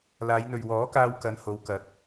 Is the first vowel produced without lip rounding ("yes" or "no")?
yes